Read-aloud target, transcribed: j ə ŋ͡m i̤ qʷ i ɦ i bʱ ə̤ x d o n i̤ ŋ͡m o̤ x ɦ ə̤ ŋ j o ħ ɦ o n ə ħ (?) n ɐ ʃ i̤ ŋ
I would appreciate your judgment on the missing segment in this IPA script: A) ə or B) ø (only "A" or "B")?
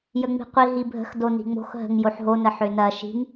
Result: B